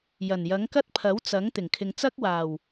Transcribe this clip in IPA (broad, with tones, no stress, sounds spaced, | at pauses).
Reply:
j ɐ˨˩ n j ɐ˨˥ ŋ k ɐ˥ t̚ pʰ ɐ˨˥ w t͡s ɐ˨˥ ŋ t̪ ɪ˨˩ ŋ kʰ ɪ˨ ŋ t͡s ɐ˥ k̚ w aː˨˩ w